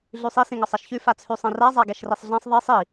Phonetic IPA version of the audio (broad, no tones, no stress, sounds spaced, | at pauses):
ɮ ʉ sˤ i s ĩ ŋ ɒ sˤ ɛ ʃ ç ʉ f a t͡sʰ ʉ sˤ ɛ̃ r a zˤ a ɡ ɛ ʃ r i sˤ ɮ ã sˤ ðˤ i sˤ i